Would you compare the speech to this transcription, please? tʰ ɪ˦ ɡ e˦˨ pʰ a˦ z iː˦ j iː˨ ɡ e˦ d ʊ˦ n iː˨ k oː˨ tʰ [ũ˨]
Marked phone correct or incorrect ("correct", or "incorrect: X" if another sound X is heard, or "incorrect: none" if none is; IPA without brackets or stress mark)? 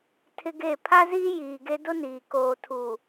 incorrect: u˨